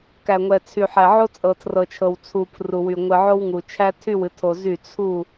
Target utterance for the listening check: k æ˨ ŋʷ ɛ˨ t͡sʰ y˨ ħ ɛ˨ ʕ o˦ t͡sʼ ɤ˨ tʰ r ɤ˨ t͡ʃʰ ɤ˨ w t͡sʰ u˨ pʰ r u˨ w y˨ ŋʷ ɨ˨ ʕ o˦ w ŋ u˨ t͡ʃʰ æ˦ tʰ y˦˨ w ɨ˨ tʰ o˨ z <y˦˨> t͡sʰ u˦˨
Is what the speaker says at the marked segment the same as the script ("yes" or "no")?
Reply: yes